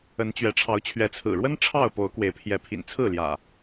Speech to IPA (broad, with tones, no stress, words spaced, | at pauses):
ə˨˦n t͡ɕɥɛ˨˦ ʈ͡ʂʰɑ˨˦ʊ̯t͡ɕʰɥɛ˨˦t͡sʰɹ̩˨˩ɻwə˦n ʈ͡ʂʰɑ˥˨ʊ̯po˨˦ʊ̯ kwe˨˦ɪ̯pʰjɛ˨˦ pʰḭ˨˩nt͡sʰɹ̩˥˨ljä̰˨˩